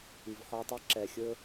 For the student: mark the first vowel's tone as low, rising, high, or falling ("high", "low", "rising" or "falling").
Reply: low